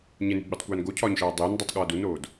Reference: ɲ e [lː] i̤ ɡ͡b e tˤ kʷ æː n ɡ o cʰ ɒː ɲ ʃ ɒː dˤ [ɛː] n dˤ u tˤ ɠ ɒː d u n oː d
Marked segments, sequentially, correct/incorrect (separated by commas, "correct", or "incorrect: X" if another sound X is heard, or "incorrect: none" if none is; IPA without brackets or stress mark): incorrect: n, incorrect: eː